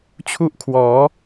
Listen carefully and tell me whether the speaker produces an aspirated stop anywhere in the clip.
yes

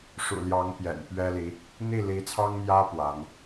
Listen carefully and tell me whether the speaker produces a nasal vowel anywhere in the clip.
no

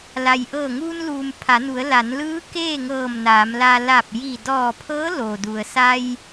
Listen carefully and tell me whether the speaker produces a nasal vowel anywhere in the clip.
no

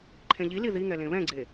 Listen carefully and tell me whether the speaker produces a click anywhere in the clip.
yes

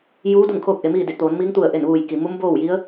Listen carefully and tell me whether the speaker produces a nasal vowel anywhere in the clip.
no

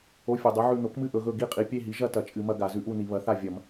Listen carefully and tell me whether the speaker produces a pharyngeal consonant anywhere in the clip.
yes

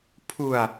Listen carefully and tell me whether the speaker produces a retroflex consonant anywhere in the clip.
no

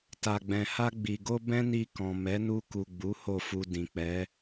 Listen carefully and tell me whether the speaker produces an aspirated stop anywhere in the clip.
no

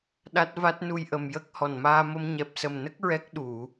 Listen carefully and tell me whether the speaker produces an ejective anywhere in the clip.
no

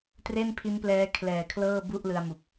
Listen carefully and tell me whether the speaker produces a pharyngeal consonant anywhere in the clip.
no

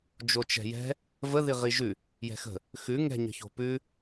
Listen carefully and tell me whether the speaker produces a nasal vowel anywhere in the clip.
no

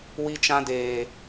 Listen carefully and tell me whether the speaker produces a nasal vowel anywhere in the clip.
yes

